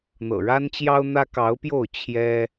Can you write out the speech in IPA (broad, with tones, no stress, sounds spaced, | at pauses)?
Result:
n̪ ɤ̰˨˩ ɻ a˦ n t͡ɕ j ɑ˦ ʊ̯ n̪ ä˦ k ɑ˨˦ ʊ̯ p j o˥˨ ʊ̯ t͡ɕʰ j ɛ˦